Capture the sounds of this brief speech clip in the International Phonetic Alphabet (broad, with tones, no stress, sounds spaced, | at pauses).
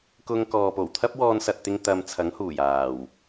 k ʊ˧ ŋ k ɔː˨ p o˨˩ w t̪ʰ ɐ˥ p̚ w ɔː˧ n s ɐ˨ t̚ t̪ ɪ˧ ŋ t̪ ɐ˧ m t͡sʰ ɐ˨˥ ŋ h uː˨˩ j aː˨˩ w